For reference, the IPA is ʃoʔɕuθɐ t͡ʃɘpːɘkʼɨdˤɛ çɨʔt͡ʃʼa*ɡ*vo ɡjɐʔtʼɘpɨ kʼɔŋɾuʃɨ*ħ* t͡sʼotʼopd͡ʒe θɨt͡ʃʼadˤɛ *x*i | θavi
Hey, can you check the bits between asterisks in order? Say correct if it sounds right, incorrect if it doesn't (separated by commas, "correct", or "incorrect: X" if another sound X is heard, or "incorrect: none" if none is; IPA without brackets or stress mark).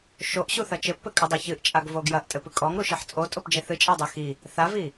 correct, correct, correct